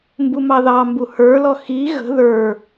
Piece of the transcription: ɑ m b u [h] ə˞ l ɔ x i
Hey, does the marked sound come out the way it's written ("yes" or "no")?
yes